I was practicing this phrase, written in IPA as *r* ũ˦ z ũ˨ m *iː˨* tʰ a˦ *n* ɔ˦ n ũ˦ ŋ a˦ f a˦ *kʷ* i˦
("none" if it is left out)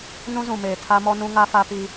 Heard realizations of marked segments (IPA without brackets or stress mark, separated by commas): n, eː˨, m, p